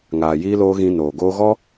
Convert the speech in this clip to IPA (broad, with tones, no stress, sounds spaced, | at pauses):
ŋ aː˨ j iː˧ l oː˧ ɣ ĩ˧ n oː˨ ɡ oː˦ ɣ ɔ˦